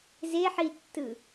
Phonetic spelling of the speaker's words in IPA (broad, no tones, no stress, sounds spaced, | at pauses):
z e ħ i tː ɯ